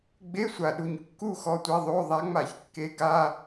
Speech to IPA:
ɡ͡b e˧˥˧ sʷ a˨˩ ɗ u˨˩ ɲ kː u˥˧ x ɔ˧˥˧ tʷ ɛ˧˥˧ ðˤ o˧˥˧ ðˤ a˨˦ ŋ͡m a˧˩˧ ç kː e˨˦ ɡ a˧˥˧

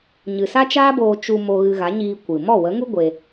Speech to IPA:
ɲ ɨ˨ s a˦ t͡ʃ aː˦ b oː˧ t͡ʃ u˧ m o˧ ɣ ɨ˧ ɣ a˨˦ ɲ iː˧ kʷ ɨ˨ m ɔ˦˨ w ə˨˦ ŋ u˦ ɡʷ e˧

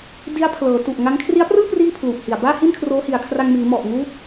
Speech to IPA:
d i˦˥ a̯ pʰ l ɤː˩˦ t u˨˩ ʔ ŋ a˦˥ ŋ kʰ r i˦˥ a̯ p r ɯː˥˩ p r iː˥˩ pʰ l u˨˩ ʔ h i˨˩ a̯ b aː˥˩ h i˥˩ n kʰ r oː˦˥ h i˨˩ a̯ kʰ r a˧ ŋ m iː˩˦ m ɔ˨˩ ʔ ŋ uː˦˥ t̚

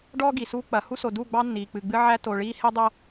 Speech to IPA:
ɖ ɔː˦ ɡ i˨ s uː˦ k͡p ɐ˨ h u˦ s o˨ d uː˦˨ ɡ͡b ɑ˦ nː iː˨ k͡p ɨ˨ ɡ͡b ɨ˦ ʕ æ˦ t o˨ ɭ iː˦ h e˦ dˤ ɐ˦

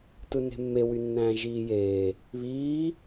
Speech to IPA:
t ɯ n e̤ mː e w y nː æ̃ː ʒ iː j eː | β iː

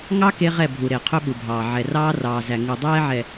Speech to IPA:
ŋ ɑ˦ k e˦ ʁ ɛ˦˨ bʱ u˨ ɾ e˨ qʰ ɵ˦ ɓ u˨ bʱ ɑː˨ ʕ ɛ˨ r ɑː˦ r ɑː˨ z æ˨ ŋ u˨ dˤ ɛː˦ ʕ ɛ˨

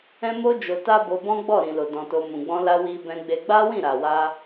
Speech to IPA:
ɛ̃˦ m o˦ d͡ʒ o˧ t a˦ b o˧ b ɔ̃˦ ɡ͡b ɔ˦˨ ɾ ĩ˨ l o˨ d ɔ̃˧ t o˧ m ũ˨ ɡ͡b ɔ̃˧ l a˧ w i˧ b ɛ̃˧ ɡ͡b e˧ ɡ͡b a˦ w ĩ˦˨ ɾ a˨ w a˧

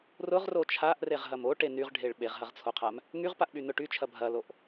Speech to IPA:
r ʊ ʁ r o t͡ʃʰ a ʔ r e ʁ ɦ ɐ m o ʈ e n y ʁ ɖʱ e ɭ ɓ e ʁ ɦ ɐ ʁ t͡sʰ o qʰ a m | ŋ y ʁ p a ʔ ɓ y n ʊ ʈ y t͡ʃʰ ɐ bʱ ɐ l o ʔ

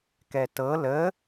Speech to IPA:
k ɛ t ɤ l ə

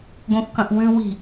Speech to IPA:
ɡʷ ẽ xʷ k ɐ̃ ʔ w ʉ w i̤

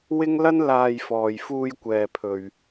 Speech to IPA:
w ɪ˥ ŋ l ɐ˥ n l aː˧ j f ɔː˨ j f uː˧ j kʷ ɛː˨ pʰ ɵ˨ ɥ

